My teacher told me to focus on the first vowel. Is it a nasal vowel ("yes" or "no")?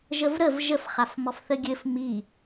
no